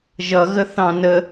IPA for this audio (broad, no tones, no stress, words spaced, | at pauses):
ʒʌ ɣəθɑ̃nə